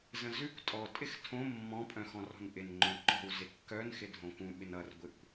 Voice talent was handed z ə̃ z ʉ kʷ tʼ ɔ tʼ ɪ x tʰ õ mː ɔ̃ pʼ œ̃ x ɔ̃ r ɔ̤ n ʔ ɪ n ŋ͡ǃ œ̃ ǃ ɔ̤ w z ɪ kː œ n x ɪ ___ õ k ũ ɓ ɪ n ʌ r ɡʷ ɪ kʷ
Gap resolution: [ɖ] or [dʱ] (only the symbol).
dʱ